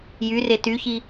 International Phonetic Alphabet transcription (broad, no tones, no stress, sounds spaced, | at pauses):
j y r e t y ç i